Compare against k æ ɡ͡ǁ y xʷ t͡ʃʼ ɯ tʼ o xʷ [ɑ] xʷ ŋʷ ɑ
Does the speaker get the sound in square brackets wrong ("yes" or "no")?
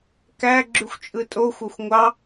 no